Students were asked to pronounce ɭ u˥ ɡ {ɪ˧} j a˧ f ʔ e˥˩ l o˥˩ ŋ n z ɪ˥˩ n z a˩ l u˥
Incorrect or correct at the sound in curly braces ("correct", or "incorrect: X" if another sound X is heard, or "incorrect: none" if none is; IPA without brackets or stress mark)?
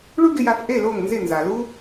correct